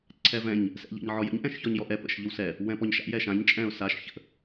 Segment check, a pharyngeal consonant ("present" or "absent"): present